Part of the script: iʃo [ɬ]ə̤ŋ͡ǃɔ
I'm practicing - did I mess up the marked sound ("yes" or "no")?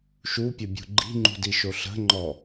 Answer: no